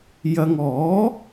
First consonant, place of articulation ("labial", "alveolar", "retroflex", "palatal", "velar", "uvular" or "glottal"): palatal